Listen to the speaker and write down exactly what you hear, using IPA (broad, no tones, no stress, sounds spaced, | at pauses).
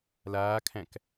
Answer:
l aː kʰ æ̃ k